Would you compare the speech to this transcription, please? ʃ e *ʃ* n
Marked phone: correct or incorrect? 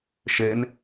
incorrect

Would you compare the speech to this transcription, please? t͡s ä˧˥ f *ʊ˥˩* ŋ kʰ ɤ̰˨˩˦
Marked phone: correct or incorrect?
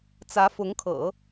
incorrect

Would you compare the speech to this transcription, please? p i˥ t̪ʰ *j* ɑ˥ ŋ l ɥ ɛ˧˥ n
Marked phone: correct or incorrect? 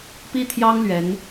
correct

